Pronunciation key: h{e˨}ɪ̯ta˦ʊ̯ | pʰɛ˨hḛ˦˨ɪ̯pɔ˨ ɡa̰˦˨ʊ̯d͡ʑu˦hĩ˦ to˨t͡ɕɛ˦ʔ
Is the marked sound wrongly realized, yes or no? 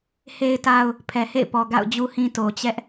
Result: yes